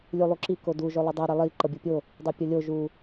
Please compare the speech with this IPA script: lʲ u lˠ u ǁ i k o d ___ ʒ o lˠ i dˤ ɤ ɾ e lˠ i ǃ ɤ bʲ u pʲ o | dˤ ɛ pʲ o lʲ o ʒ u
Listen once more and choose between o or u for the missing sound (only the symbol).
u